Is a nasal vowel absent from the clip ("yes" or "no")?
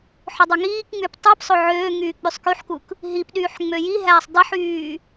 yes